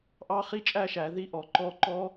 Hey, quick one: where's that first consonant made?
throat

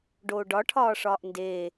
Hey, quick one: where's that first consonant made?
retroflex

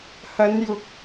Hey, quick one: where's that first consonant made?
throat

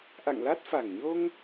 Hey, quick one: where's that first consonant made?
throat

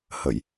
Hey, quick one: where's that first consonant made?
throat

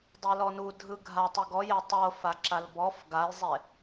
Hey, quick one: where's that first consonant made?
tongue tip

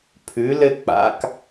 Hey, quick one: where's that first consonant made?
lips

